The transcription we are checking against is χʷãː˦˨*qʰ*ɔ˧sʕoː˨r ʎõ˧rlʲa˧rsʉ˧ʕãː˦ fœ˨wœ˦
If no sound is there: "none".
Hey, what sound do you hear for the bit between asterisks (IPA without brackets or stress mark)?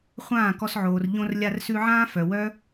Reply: k